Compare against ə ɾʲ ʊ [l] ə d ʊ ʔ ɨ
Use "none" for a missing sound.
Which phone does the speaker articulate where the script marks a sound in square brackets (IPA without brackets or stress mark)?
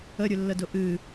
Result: lː